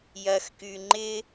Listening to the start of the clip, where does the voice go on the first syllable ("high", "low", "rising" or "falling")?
low